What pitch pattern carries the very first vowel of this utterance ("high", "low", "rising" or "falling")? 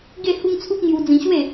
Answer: falling